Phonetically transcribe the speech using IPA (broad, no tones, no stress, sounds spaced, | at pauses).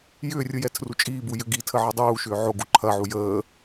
j ʏː rʲ ɯ j ɛ tʰ r u t͡ʃʼ iː b u j ʏ ɡ i tʰ ə ʕ ɐ dˤ uː ʃ ʏː ʕ o ɡ u ǃʰ ɐ ʕ u j əː